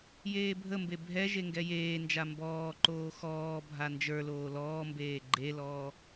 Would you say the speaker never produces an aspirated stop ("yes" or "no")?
yes